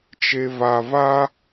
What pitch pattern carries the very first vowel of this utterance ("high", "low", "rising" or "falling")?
low